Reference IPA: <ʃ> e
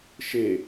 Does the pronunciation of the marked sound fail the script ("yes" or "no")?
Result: no